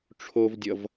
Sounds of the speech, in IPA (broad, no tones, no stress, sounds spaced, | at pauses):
ʈ͡ʂʰ o v dʲ ʌ v